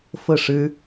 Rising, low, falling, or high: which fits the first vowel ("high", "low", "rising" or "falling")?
falling